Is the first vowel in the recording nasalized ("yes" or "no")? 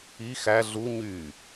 no